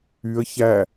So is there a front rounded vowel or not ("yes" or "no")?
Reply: yes